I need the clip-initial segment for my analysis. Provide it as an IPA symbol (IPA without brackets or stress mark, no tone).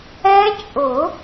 ɛ